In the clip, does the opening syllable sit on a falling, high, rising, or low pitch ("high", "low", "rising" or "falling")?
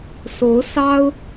rising